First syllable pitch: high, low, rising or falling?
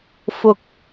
low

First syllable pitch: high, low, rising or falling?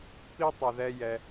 high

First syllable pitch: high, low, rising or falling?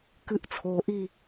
rising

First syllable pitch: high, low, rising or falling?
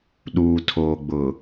low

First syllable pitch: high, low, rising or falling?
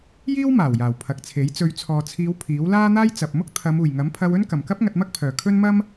high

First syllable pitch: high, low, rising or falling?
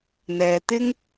low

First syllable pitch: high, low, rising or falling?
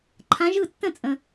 rising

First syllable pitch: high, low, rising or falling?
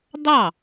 falling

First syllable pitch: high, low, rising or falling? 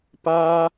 high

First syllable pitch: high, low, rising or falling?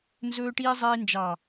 high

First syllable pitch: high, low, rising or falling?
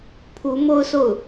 rising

